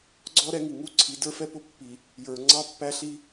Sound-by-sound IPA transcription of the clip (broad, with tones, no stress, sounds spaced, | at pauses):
ɡ͡ǀ ɔ˦ ɾ ɛ˦ ŋ i˨ ŋ u˦ ǀʰ i˨˦ d ə˞˦ f ɛ˦ p ʊ˦ pː i˨ | j ə˞˨ ŋ͡ǀ ɑ˦ pː æ˦ ɬ i˦